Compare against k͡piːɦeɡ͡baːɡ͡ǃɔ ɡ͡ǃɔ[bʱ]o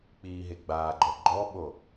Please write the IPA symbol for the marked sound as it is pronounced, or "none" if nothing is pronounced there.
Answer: ɓ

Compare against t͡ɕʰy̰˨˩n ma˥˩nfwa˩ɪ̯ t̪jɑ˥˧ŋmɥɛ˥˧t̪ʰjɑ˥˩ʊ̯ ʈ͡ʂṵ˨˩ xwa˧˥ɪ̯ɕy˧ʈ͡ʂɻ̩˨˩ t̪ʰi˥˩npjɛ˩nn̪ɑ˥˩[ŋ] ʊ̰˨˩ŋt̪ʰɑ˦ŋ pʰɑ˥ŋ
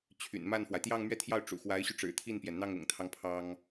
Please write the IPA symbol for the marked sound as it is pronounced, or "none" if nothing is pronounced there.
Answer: ŋ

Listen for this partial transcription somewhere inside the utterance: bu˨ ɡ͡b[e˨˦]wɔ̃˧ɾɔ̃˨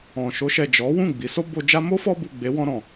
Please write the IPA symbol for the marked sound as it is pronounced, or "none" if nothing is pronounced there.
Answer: e˨˦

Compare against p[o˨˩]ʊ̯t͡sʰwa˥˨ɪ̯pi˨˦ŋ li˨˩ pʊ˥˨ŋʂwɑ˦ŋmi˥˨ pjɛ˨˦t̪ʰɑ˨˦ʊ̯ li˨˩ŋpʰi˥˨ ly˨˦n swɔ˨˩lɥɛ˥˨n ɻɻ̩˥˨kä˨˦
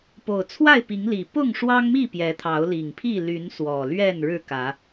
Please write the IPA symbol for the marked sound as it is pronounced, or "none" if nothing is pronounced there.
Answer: o˨˩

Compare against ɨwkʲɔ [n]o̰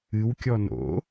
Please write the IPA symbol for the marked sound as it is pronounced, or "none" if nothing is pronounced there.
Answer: n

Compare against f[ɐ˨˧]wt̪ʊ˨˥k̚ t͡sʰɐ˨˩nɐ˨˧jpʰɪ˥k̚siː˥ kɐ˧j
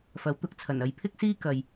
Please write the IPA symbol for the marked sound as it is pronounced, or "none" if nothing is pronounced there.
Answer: ɐ˨˥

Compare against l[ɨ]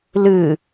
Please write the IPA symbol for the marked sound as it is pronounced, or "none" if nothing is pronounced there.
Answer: ɨ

